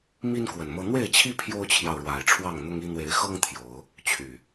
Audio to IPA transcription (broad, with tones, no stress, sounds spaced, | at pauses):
m i˦ n k w ə˨˩ n m ɤ˦ n̪ w e˥˨ ɪ̯ t͡ɕʰ i˦ pʰ j o˦ ʊ̯ t͡ɕʰ j ɑ˨ ʊ̯ ɻ w a˨˩ ɪ̯ ʈ͡ʂʰ w ɑ˥˨ ŋ n̪ ʊ˦ ŋ i˦ n̪ w e˨˦ ɪ̯ x ɤ˦ ŋ t̪ʰ j o˨˦ ʊ̯ | t͡ɕʰ y˨˩